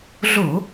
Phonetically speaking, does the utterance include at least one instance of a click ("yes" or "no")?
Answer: no